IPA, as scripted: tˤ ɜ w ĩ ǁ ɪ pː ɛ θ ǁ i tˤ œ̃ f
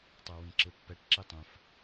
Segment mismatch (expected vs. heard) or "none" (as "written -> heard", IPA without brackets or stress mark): θ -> ʈ